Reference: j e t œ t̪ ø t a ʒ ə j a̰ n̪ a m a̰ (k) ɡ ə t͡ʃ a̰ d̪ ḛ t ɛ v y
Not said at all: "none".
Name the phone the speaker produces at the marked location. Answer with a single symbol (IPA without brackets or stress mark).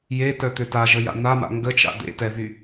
ŋ